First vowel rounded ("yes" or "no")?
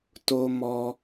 yes